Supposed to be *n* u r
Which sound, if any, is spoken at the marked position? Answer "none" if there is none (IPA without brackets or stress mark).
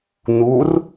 n